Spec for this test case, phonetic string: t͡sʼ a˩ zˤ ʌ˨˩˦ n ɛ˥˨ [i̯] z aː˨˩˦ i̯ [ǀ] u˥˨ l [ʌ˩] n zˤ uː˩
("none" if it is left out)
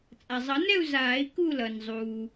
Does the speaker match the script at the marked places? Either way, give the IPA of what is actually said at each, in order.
u̯, k, ʌ˩

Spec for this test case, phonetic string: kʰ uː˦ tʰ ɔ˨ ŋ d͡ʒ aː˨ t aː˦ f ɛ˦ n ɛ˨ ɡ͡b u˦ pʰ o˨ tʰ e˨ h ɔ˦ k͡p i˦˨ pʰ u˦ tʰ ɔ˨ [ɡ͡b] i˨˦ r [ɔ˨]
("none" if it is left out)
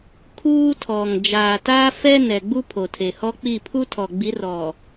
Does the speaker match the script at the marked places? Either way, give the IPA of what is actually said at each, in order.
ɡ͡b, ɔ˨

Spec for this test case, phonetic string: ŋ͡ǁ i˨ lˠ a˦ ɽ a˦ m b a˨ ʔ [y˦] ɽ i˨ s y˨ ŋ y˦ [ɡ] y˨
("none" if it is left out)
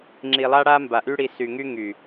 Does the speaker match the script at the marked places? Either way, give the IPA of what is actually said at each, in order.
y˦, ŋ

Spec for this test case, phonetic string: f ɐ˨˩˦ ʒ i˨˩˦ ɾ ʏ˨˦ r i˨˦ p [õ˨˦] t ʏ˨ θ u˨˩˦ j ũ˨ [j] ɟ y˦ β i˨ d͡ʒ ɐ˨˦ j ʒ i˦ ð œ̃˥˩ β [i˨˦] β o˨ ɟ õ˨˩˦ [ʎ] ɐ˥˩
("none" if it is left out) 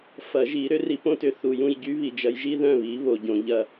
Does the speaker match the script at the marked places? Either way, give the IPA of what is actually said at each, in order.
õ˦, j, i˨˦, ʎ

